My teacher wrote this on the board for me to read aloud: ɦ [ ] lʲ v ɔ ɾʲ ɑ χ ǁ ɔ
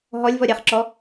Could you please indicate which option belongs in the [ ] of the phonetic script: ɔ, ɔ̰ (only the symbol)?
ɔ